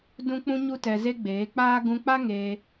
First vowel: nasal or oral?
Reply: nasal